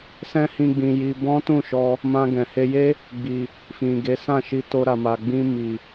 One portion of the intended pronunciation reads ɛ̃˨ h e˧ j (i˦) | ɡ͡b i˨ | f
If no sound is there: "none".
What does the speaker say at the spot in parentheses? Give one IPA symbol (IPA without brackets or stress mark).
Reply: e˦